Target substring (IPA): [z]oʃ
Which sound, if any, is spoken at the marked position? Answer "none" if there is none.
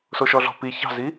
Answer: s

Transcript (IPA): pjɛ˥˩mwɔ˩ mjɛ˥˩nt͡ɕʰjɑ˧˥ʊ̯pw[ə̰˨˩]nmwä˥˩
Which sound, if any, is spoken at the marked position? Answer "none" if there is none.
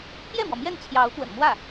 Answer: ə̰˨˩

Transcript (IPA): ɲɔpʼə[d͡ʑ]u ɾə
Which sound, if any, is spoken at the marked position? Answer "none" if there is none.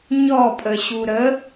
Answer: ɕ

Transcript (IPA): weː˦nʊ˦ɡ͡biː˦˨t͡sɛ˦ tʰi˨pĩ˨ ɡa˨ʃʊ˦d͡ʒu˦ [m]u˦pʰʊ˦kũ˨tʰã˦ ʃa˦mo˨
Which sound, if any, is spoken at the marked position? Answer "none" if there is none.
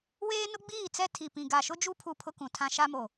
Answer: pʰ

